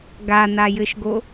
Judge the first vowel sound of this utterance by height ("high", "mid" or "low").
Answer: low